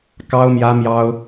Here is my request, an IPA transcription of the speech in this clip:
k ɑ˥ ʊ̯ m j ä˥ m j ɑ˥ ʊ̯

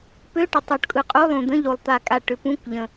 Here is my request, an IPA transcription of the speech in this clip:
p ø˧˥˧ ʈ ʏ˨˩ tˤ o˨˩ ʈ kʼ ɯ˨˩ qʼ u˧˥˧ lˠ ũ˨˩ d̪ ə̃˧˥˧ ʎ o˨˩ lˠ t̪ a˨˩ kʼ a˨˩ ʈ ʏ˨˩ p ũ˧˥˧ k ʎ ə̃˨˩

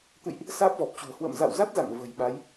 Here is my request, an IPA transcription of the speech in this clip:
t̪ ɨ̰˧˨ j ʔ | s aː˦˥ p̚ v ɔ˨˩ p̚ t͡ɕ ṳ˨˩ ə̯ h w ə̰ː˧˨ m z a̰˧˨ w z a˦˥ t̚ z a̰˧˨ ŋ v ə̤˨˩ j ɓ a˨˦ j

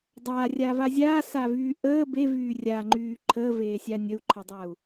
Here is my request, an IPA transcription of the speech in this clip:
dˤ aː rʲ a v a zʲ aː s a v yː ʔ əː b e v yː rʲ a ŋ͡ǃ yː ǃʰ əː v eː sʲ a nʲ ə u̯ ǃʰ ə dˤ a u̯

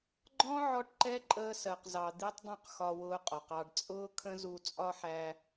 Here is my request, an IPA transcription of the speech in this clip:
ɡ͡ǃ ɔ̃˦ ʕ ɔ˦ ʈ ǃ ɛ˦ ǃʼ əː˧ s ɜ˨ q z ɑ˨ d̪ i˦ tˤ dˤ ũ˦˨ q x ɒ˧ w ʊː˧ qʼ ɔ˨ q ɑ˧ ɖ t͡sʼ ʊː˦ kʰ ə̃˦ z u˧ t͡sʼ ɒ˧ ħ æ˧

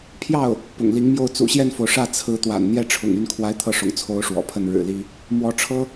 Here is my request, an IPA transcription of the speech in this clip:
pʰ j ɑ˥˩ ʊ̯ | p ʊ̰˨˩ ŋ l i˧˥ ŋ m j o˥˩ ʊ̯ t͡s ṵ˨˩ ɕ j ɛ˥˩ n f o˩ ʊ̯ ʂ ä˥˩ t͡sʰ ɹ̩˧˥ t̪ w a̰˨˩ n n̪ j ɛ˥ ʈ͡ʂʰ ʊ̰˨˩ ŋ y˥˩ n kʰ w a˥ ɪ̯ t̪ʰ ɤ˥˩ ʂ ʊ̰˨˩ ŋ t͡sʰ o˧˥ ʊ̯ ʂ w ɔ̰˨˩ pʰ ə˥˩ n ɻ ɻ̩˨˩ l i˥ | m w ɔ˧˥ ʈ͡ʂʰ ɤ˥

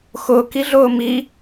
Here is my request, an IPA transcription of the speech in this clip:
x ʊ k i ɮ ʊː m i

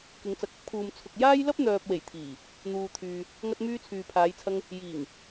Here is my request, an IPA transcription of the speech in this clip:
k ɪ˨˧ ŋ t͡s ɐ˨˥ k̚ ɐ˥ p̚ kʰ uː˨ m t͡sʰ ʊ˨ k̚ j aː˥ j l ɐ˥ p̚ n̪ œː˨ p̚ w e˨˩ j t̪ʰ iː˨˩ | n̪ uː˨ t̪ʰ yː˨ | ŋ ɐ˧ t̚ m yː˧ t͡sʰ yː˨ pʰ aː˨˧ j t͡sʰ ɐ˧ ŋ | j iː˨˩ ŋ

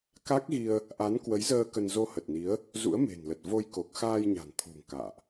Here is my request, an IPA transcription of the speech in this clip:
k a˦˥ k̚ ɣ i˧ ə̯ | ʔ a˨˦ n k w ə˨˦ j z əː˧ k ə˧ n z o˧ h ə˨˩ t̚ n i˨˦ ə̯ | z ṵ˧˥ ə̯ m e̤˨˩ n l ə˨˩ t̚ v o˧ j k o˨˩ k̚ x aː˧ j ɲ a̤˨˩ n t̪ʰ ṳ˨˩ ŋ k a̰ː˧˨ ʔ

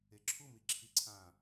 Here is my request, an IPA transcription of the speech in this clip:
e ǁʰ u m i ǁʰ i ǀʰ ã

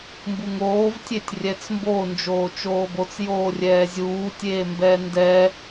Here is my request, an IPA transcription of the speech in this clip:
m b u ŋ oː v tʲ e tʲ rʲ ɛ t͡s m b o n d͡ʒ oː t͡ʃ oː b o t͡s j oː rʲ ɛː zʲ uː tʲ eː m b ɛː n d ɛː

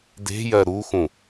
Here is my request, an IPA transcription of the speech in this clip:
d e̤ j ɜ ɾ u x ũ

